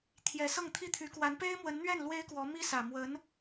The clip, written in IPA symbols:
t̪ʰ j ɛ˧˥ s ɤ˥˩ ŋ t̪ʰ i˥ t̪ʰ y˧˥ k w a˧˥ n p e˥ ɪ̯ m w ə˧˥ n n̪ ɥ ɛ˥˩ n l w e˥ ɪ̯ k w ɔ˧˥ m i˥ s ä˨˩ m w ə˧˥ n

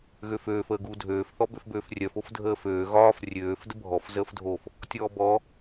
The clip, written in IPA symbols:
ɣ ø f øː f əː ɡ u dʱ øː f θ ɔ b ø f b øː f rʲ œ f o f dʱ əː f øː ɣ ɒː f rʲ øː f d ə bʱ ɔ f z əː f dʱ o f | tʲ ɔː b ɔ

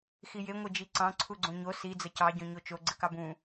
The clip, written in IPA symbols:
x i j e ŋʷ e d͡ʒ i ǀ ɑ̃ ǀʰ u ɡ͡ǀ õ ɲ o s i d͡z ə c ɑ ɟ õ ɲ o t͡ʃ o ɡ͡ǀ ɘ k ɑ b ũ

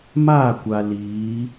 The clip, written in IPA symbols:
m aː˦˨ kʷ a˨ l iː˨˦

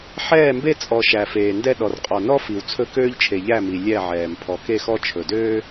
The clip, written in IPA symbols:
ħ ɛː˦˨ m b e˦ t͡sʼ ɔ˨ ʃ æ˨ f eː˨ n d ɛ˦ ɗ ɔ˨ r qʼ ɔ˨ n ɔ˦ f i˨ w t͡sʰ ɵ˦ k øː˦ ʎ t͡ʃʰ e˨ ʎ æ˦˨ m i˨ lʲ ɛ˦˨ ʕ ɛː˨ m pʰ ɔ˨ k e˦˨ x ɔ˦ t͡ʃʰ ɵ˨ d øː˦

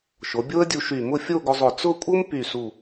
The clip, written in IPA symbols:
ʃ o˩˧ bʲ o˥ ə̯ dʲ u˧ ʃ y˧˩ m ʊ˥˧ fʲ o˥˧ ɡ ʊ˧ zˤ ʊ˧˩ t͡s ʊ˥˧ kʷʼ ɤ˥ m p y˧˩ s u˧˩

